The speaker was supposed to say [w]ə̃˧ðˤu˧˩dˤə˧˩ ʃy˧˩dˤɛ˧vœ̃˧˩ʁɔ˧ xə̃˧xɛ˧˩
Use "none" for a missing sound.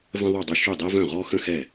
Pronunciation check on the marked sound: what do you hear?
v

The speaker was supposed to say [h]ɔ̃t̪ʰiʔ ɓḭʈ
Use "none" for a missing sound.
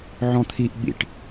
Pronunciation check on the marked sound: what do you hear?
ʕ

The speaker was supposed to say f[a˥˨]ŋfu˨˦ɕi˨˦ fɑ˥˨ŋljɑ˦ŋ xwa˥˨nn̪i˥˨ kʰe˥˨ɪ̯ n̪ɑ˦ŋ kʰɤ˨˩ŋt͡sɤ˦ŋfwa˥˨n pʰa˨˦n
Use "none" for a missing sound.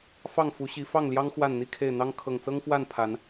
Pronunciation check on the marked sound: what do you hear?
ɑ˥˨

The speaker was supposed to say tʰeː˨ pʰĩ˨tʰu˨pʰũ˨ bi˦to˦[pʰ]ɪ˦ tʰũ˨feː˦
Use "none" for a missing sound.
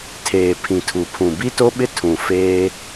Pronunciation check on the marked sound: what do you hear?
ɓ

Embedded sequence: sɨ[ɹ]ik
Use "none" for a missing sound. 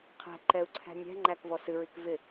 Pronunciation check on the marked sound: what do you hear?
ɹ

